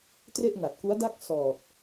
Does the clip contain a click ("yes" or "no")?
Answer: no